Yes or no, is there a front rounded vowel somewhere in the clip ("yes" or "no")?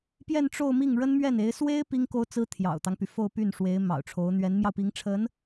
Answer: yes